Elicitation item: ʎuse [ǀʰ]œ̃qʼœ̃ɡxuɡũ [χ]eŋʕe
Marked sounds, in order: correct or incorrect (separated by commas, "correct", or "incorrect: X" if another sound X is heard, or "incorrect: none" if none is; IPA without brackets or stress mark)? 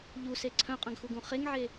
correct, correct